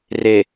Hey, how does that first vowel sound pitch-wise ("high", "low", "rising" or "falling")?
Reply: low